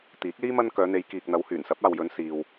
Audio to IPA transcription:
t̪iː˨˥k̚liː˥ mɐ˥n kœː˨˧n̪e˨˧jkiː˨k̚n̪ɐ˨˧w hyː˨˩nsɐ˨˥p̚aː˨wjɵ˨˧n siː˨w

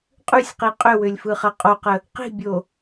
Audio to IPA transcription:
qʼʉsʲqi qʼʏwʏlʲfɯχɐ qʼoqə | qi̤bʲo

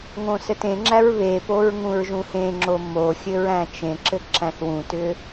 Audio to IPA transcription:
ŋõsɘtẽŋ͡ǁæɹ βepoɹ ŋũɹʒũhẽŋ͡ǁo moxʲɘɹ æ̃t͡ʃẽǁɘ ǁæ̃θwũtʏ

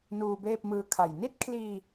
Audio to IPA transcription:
nuː˧beː˥˩p̚mɯː˧kʰa˨˩j ni˥˩t̚kʰliː˧

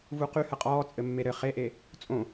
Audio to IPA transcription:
vuqyhə qʼɔː t͡sʼɘmːeɾɘ χeʔe | t͡sʼõ

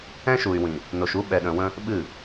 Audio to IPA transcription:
ɛ̃˦ʃu˨y̯wĩ˨ | no˨ʃu˦ ɓɛ˨ɗə̃˨wə̃˦ | ɓɨ˦˨

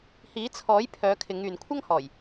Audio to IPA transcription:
hiː˨˥t͡sʰɔː˨˥jpʰœː˨˧ kʰɪ˨˧ŋyː˨n kʷʰɐ˥ŋhɔː˨˩j

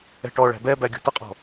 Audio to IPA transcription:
ɛ̤ʈɔɭæ̤ bɛbæ ɡʲo̤t̪əqʼɔ̤

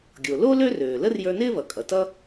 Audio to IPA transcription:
ɡʲo˩lo˥ lø˥røː˩lə˥r jə˞˧nɪː˥βʌ˩kʼʌ˩ tʌ˥

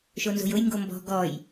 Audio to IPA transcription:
ʃonzo̤jʊj ŋɡombɔ̤ ɡɔj

